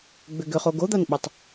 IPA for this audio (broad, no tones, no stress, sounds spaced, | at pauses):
ɡ͡b ʏ ɡ ʏ χ o ɡ o d̪ a n ɓ ɑ tˤ